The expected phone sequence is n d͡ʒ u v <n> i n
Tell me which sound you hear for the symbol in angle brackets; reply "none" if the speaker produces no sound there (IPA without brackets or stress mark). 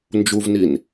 n